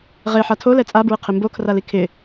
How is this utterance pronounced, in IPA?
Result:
ʁ e ħ a tʰ o l ɛ t͡sʼ a b ɹ ɪ qʰ ɪ m b o kʰ r a l i kʰ ɪ

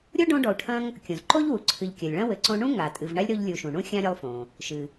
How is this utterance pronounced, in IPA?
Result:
ɾʲ o˥ ɖ õ˦ ɖ ɔ˨ u̯ ʈʰ ɐ̃˦ ŋ | kʲ õ˩ z ǃ o˥ ʎ w u˩ ǀʰ ɨ˨ ʎ kʲ ɐ˩ lʲ ɭ ɐ̃˥ w ɘ˨ ǀ õ˦ ɳ ũ˥ ŋ a˩ tʼ ɨ˨ v ɳ a˥ lʲ ɾ o˦ ʎ lʲ u˨ ʃ ũ˩ ɳ ũ˥ xʲ ã˥ ɾʲ ɘ˦ lˠ f õ˩ | ʃ ɨ˩

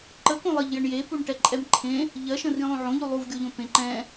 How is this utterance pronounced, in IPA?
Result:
ǃ ə k õ lˠ ə ʎ j ə ɳ j e p u ɳ ʈ ɛ ǃʼ ɛ m ǃʰ ẽ | ʎ ɜ ʃ ə̃ r ĩ lˠ õ ʕ õ ʎ u lˠ u v ɡʲ o ʎ õ p ẽ ǃ ɛ̃

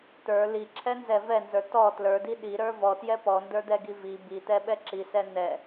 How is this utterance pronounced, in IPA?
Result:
t̪ ə˞ l i ǁʰ ɛ n z ɛ v ɛ n z ə˞ t ɔ t l ə˞ d i ɗ i ɾ ə˞ v ɔ t j ɛ p ɔ n d ə˞ d̪ ɛ ɡ i v i b i t̪ ɛ ɓ ɛ ǁ i s ɛ n̪ ɛ

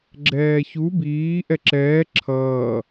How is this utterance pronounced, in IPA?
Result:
ɡ͡ǁ ɛː ç u b iː ʔ ɛ ǁ ɛː ǁʰ ʌː

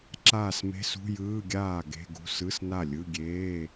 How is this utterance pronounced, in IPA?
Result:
ǁ aː˥˩ s m e̤˧˥˧ s ṳ˧˥˧ j ɯː˧˥˧ ɡʲ aː˥˩ ɡ e̤˧˥˧ ɡ ṳ˧˥˧ s ɯ˧˥˧ s n a˥˩ lʲ ɯ˧˥˧ ɡʲ eː˧˥˧

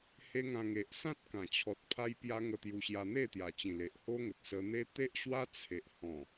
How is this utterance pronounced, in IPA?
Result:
h e˦ ŋ ã˧ ŋ e˨ ʔ s ã˦ t̚ k ã˨˩ t͡ɕʰ ɔ˨ t̚ pʰ a˦ j p j a˦ ŋ ə˧ t̪ j u˧ ɕ j a˧ n̪ e˥˧ t̪ j a˨˩ t͡ɕ ĩ˨˩ l e˨ ʔ h o˦ ŋ ə˨ t̚ s ə˧ n̪ e˦ t̪ e˦ ʔ ɕ w a˦ t͡sʰ e˨ ʔ h ɔ̃˨˩

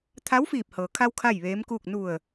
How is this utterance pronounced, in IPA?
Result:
t̪ʰ a˧˥ w f iː˧˩ p̚ h ɤː˩ kʰ a˧ w kʰ a˥˨ j ʋ eː˧˥ m k uː˥˨ k̚ n u˧˩ ə̯

